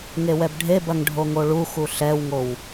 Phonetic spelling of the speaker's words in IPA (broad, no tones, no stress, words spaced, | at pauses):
ŋewɛbɖʱebɐŋ ɖʱoŋoɭuxu ɬɛwŋow